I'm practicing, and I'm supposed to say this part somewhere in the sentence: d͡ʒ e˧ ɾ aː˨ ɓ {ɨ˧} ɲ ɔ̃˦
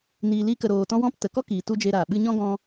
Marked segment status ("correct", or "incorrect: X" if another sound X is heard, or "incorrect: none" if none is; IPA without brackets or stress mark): correct